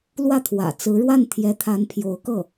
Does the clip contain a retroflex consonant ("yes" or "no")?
yes